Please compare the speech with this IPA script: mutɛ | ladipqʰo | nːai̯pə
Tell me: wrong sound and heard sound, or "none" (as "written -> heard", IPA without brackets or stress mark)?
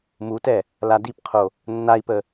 none